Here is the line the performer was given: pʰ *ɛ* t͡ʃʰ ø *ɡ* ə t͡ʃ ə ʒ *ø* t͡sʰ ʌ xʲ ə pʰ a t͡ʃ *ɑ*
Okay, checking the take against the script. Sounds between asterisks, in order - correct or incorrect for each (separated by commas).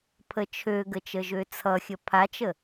incorrect, correct, correct, incorrect